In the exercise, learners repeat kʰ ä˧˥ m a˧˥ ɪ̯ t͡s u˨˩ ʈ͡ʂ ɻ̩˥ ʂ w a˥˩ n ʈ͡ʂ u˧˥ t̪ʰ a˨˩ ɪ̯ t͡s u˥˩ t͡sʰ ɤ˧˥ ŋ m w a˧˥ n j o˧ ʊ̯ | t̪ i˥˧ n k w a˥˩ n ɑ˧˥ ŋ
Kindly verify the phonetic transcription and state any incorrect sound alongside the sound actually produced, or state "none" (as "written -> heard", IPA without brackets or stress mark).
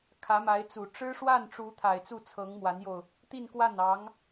none